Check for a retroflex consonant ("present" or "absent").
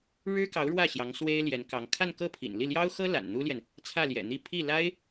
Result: present